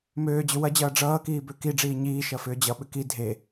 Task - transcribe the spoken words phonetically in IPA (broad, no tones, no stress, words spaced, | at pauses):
møːd͡ʑʏ wɐd͡ʑʌː ɖ͡ʐʌːkiː bøkiɖ͡ʐiː ɲiːʃɐ fʏːd͡ʑʌɓʏ ki dʱe